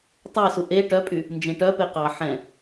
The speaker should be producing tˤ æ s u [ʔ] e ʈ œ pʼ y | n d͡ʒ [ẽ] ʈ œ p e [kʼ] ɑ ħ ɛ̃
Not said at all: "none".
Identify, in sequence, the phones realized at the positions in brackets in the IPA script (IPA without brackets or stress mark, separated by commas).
ʔ, ẽ, q